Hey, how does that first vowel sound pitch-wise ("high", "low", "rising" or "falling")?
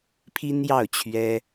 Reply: high